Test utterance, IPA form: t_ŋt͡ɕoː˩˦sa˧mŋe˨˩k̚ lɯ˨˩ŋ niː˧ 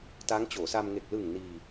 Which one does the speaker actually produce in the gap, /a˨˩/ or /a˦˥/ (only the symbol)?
a˦˥